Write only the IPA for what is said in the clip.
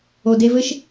o˨ d e˧ v ɘ˦ ʃ

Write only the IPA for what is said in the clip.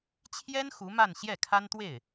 t͡ɕʰ j ɛ˥ n x u˧˥ m a˥˧ n ɕ j ɛ˥˩ kʰ a˥ n t̪ w e˥˩ ɪ̯

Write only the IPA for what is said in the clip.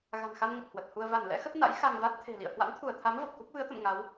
ɣ a̤˨˩ n x a˧ n ŋ ə˨˩ t̚ h w ə˨˩ t̚ h u˧ ə̯ v a˧˩ n l ɛ̰˧˥ x ə˦˥ t̚ n a̰˧˥ j x a˧ ŋ v a˦˥ t̚ t̪ʰ e̤˨˩ l ḭ˧˨ ə̯ h w a̰˧˥ n t̪ʰ u˧˩ ə̯ t̪ʰ a˨˦ m v ə˨˩ p̚ k u˦˥ k̚ v ɨ˨˦ ə̯ t̪ ə̰˧˨ m ŋ a˨˦ w

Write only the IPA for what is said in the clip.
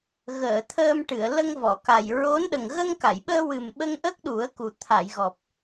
ɣ əː˨˩˨ t̪ʰ əː˧ m ʈ ɨ˨˩˨ ə̯ l ə˧ ŋ v ɔ˨˩˨ k a˨˩ j ɹ o˧˥ n ɗ ə˨˩ ŋ ɣ ə˧ ŋ k a˨˩˨ j ɓ əː˧ w ɨ˨˩ m ɓ ə˧ ŋ ʔ ə˦˥ k̚ ɗ u˨˩˦ ə̯ k u˨˩ t̪ʰ a˨˩˨ j ɣ ɔ˨˩ p̚

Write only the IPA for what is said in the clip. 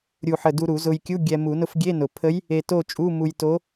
ɾʲ u˧˩ ħ ə˧˩ d u˧ ɾ u˨˩˦ z ʊ˧ j kʲ u˧˥˧ ɡʲ ɛ˧ m u˨˩˦ n ʊ˧˥ f ɡʲ e˧˥˧ n ʊ˨˩˦ pʰ ə˧˥ j | e˧ t o˥˨ t͡ʃʼ u˧˥˧ m u˧ j t o˧˥

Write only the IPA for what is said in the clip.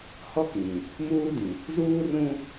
h ɔ˦ k ĩ˨ | m uː˦ d ĩ˨ | z uː˦ r ũ˦

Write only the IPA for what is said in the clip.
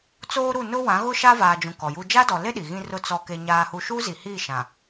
t͡s oː˦ ɾ u˦˨ n ʊ˦ w ã˨˦ ɣ ʊ˦ ʃ a˦ v aː˨ d͡ʒ ũ˨ k ɔ˨ j u˦ d͡ʒ a˦ d ɔ˨ l e˦ ɗ i˨ ɣ ĩ˦ r ʊ˦ t͡s ɔ˦ k e˦ ɲ aː˦ h u˦ ʃ u˦ z i˨ h i˦˨ ʃ ã˨

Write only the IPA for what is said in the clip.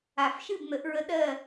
a˨˩˦ f ʃ ɨ˦˨ b n̪ ə˨˩˦ ʔ ɹ ə˧˥ ɗ ɜ˦˨

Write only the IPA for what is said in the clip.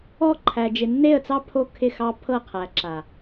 ɔ˦ ǃʰ æ˨ d͡ʒ ɪ˨ nː e˦˨ ə̯ t͡s ɑ˦ pʰ o˦ kʰ ɪ˦˨ x ɑ˦ pʰ ɤ˦˨ qʰ æ˨ ǁ a˨

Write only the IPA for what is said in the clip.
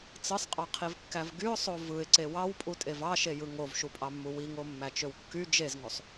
t͡s ɯ sˤ qʼ ɑ qʰ i v kː æ v ɡ y ʊ̯ sˤ o v ɯ ɪ̯ ǀ e w ɑ w pʼ u tʼ e v ɑ ʃ e j ɯ ŋ o v ʃ u pʼ ɑ mː u w i ŋ o mː æ t͡ʃ ø w kː y d͡ʒ e z ŋ o sˤ

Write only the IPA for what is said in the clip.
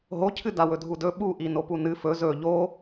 ɦ o cʰ ɨ d a w ɵ dʱ u d ɵ ɓ u ʔ i n o p u n ɨ f ɵ z ɵ ʎ o

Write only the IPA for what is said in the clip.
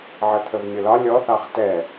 ʕ ə t̪ʰ ə v mʲ ʊ l ɒ lʲ ɔ θ ɑ χ t ɛ

